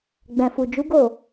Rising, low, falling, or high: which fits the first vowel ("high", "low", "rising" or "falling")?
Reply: low